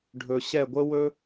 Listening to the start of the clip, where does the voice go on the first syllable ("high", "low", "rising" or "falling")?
low